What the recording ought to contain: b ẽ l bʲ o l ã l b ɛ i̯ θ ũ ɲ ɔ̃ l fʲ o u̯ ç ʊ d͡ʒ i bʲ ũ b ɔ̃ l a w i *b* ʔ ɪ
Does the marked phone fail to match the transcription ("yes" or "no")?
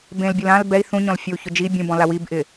no